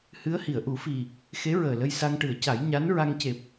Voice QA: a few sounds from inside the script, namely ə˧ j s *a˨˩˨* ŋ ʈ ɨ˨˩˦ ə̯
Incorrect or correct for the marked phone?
incorrect: a˧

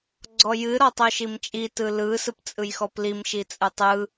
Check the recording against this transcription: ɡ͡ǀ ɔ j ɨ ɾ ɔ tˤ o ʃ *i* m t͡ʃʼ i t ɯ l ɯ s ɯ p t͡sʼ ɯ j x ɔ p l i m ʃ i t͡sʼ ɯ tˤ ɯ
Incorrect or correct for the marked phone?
correct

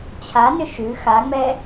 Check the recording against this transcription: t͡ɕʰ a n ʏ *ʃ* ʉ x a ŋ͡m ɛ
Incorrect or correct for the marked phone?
correct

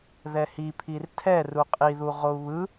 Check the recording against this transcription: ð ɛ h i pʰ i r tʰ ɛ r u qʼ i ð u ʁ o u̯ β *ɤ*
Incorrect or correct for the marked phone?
incorrect: ɯ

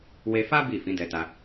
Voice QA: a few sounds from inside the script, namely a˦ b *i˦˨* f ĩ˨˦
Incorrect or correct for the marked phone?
correct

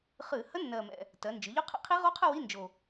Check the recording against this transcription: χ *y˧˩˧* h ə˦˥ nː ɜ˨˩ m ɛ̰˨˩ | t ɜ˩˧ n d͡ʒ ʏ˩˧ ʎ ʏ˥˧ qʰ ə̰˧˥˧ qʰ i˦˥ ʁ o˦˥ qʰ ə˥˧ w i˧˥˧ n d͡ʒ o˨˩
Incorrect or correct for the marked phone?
incorrect: ɨ˧˩˧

